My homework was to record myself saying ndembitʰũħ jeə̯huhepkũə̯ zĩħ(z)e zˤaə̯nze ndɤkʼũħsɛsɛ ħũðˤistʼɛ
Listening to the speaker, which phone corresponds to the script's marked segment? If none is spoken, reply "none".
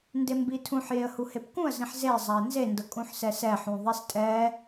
z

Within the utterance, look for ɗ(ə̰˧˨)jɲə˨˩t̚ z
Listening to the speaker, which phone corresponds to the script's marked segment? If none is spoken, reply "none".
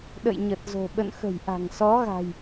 ə̰˧˨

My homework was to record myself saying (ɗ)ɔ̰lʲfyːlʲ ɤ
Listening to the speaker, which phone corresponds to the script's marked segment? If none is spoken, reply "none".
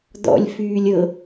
d̪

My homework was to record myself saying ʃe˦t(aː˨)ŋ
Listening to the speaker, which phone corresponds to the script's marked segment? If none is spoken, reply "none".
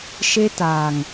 aː˨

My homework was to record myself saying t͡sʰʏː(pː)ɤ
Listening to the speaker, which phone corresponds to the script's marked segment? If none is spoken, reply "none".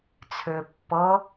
pː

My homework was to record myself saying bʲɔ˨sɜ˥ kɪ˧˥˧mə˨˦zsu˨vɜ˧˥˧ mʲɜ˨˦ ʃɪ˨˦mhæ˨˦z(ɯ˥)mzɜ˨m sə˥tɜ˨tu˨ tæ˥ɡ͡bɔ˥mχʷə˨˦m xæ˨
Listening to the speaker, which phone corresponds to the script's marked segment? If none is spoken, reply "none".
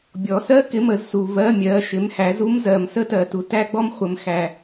u˥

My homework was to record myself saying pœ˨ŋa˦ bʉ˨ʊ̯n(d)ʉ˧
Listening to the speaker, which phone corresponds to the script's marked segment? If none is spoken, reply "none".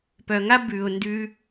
d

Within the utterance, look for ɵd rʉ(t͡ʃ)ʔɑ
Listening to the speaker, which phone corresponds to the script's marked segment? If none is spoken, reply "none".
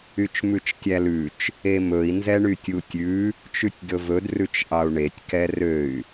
t͡ʃ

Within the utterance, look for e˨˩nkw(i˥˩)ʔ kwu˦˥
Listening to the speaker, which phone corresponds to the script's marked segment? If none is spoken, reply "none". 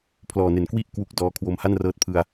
i˥˩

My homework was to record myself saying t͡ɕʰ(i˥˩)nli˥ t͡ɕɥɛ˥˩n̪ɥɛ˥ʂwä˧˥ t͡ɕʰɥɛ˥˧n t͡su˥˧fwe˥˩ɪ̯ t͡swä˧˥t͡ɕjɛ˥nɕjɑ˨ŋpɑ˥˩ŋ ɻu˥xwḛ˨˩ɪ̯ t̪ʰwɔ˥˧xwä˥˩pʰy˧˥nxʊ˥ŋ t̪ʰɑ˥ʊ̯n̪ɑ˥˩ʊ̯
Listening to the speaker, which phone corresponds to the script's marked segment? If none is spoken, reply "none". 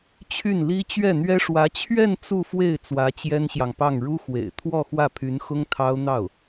y˥˩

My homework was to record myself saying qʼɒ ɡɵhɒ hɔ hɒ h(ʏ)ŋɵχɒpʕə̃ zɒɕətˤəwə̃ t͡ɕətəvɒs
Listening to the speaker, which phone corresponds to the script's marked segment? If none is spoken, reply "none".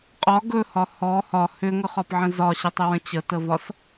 ʏ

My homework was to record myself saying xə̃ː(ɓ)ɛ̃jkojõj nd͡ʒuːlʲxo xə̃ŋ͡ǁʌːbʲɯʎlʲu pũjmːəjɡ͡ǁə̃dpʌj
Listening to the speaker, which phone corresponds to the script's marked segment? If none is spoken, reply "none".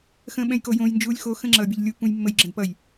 ɓ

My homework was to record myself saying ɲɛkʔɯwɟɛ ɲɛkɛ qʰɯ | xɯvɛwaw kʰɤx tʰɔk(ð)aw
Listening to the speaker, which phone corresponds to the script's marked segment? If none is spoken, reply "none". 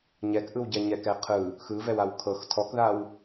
ð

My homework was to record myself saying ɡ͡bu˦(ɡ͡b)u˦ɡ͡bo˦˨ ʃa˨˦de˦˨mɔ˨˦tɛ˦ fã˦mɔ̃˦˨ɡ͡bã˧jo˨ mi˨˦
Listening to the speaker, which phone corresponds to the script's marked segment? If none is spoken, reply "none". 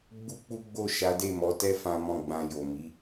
k͡p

